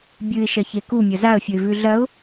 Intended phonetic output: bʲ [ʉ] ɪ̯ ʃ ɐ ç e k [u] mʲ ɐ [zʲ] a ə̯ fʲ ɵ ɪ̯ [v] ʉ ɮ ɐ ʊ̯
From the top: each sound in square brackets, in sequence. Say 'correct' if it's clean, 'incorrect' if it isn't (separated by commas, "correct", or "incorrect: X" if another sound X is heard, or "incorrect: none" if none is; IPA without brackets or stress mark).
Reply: incorrect: ɨ, correct, incorrect: z, correct